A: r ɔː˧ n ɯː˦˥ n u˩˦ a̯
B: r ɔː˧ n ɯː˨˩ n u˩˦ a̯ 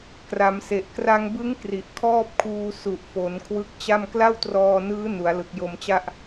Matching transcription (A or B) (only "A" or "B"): A